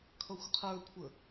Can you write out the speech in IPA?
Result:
kʰʌxʷqʰə˞kʷʰə

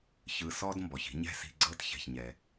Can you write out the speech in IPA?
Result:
çɯ˧sɔ˥d mbɔ˩çi̤˥ ɲɛ̤˥si̤˧ ɡ͡ǀɤ˥t çɛ̤˩çɲɛ˩

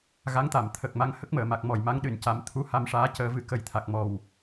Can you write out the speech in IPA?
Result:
ɣa˧˥ŋt̪a˨˩˨mt̪ʰə˨˩k̚ma˧ŋ hə˦˥k̚məː˨˩˨ma˨˩k̚ mɔ˨˩jma˧˥ŋɗɨ˨˩˨nca˨˩˦m t̪ʰu˧˥ha˧mʂaː˧˥ cəː˧vɨ˧˥ kə˨˩jt̪ʰa˨˩k̚ mɔ˨˩w

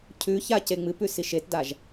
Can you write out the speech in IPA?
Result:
cʰʉça ceŋ͡mɨpʉ siʃetdaʒ

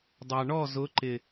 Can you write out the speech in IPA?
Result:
dˤɑ˨ ɳɔ˦˨zʊ˨˦ ǃɪ˨

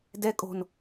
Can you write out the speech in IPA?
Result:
dɛ kʼo̤n

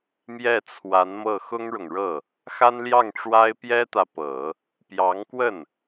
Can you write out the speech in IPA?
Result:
mjɛ˥˩t͡sʰwa˧˥nmɤ˥˩ xʊ˥ŋɻʊ˨ŋɻɤ˥˩ | xa˥nljɑ˥˩ŋʈ͡ʂwa˥ɪ̯ pjɛ˥t̪ä˨pɤ˨˩˦ | pjɑ˧˥ŋkwə˥˩n

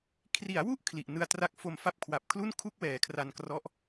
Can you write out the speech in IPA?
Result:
kʰri˩˦a̯wu˥˩ʔ kʰli˨˩ʔ nɯ˧a̯tra˦˥k̚fo˧m fa˦˥p̚kʰwa˨˩p̚ kʰlu˥˩nkʰu˥˩k̚ wɛː˨˩kʰra˧nkrɔ˦˥ʔ

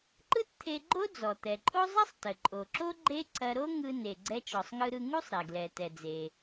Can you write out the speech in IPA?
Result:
ǃɯ˥tt̪ʰe˧ ɡ͡ǃo˥d͡zɔ˩t̪ɛ˩ǃʼo˥ zˤɐ˥sˤtə˩ ǃʼo˩ǁo˥ ɡ͡ǃe˥ ǀɐ˧ɾo˥ ŋɯ˧ne˩ ɡ͡ǀɛ˧t͡ʃɔ˩sˤŋɯ˧ɾɯ˧ ŋu˥sˤɾɛ˩ɡlɛ˩ tɛ˩d͡ze˩

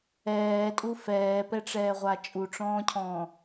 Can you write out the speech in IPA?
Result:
ɛːtʼu fɛːpɛʈ͡ʂɛːʁʷa t͡ʃʼuʈ͡ʂɔ̃ːcʰɔ̃ː

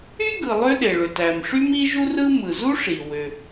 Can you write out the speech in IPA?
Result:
y˥ɡɯ˩ lˠø˥ɗe˩ɭø˩t æ˩mʂy˥m i˥ ʒu˥rɯ˥ mɯ˩zu˥ʂi˩ wø˩

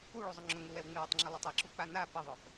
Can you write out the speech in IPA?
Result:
uɭuzˤʊ ŋ͡ǁʊŋuwɛwŋ͡mɪw ətˤŋ͡ǁɪlˠɪtˤ eǁuk͡pa na pɪðˤœp

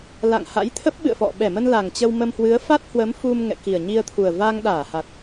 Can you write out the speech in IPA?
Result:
la̰˧˨ŋha̰˧˥jt̪ʰə˦˥p̚ ɓɨ̰˧˨ə̯fɔ̰˧˨ ɓɛ˧˩mə˧n la˨˩ŋt͡ɕə˧wmə˧m hwɨ˨˦ə̯fa˦˥t̚ hwə˨˦mfu˧m ŋɛ̰˧˨ki˨˩ə̯ɲi˧ə̯t̪ʰu˨˩ə̯ va˧ŋɗaː˧˩ha˨˩t̚

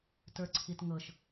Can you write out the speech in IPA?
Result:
tə˞ǀʰitŋɤʃ

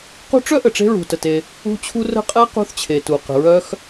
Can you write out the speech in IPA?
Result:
qṳ˥ ʈ͡ʂœ˥ʔə˩ ʈ͡ʂe̤˥ɹṳ˩tə˩te˩ | ṳ˥t͡ɕʰu˥ rə̤˥qʼɛ˥ qṳ˥θt͡ɕʰe˩tu˩ qə̤˩ɹœ˥x

